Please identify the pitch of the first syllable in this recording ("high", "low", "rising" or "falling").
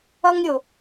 high